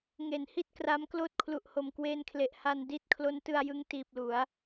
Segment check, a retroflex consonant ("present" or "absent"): absent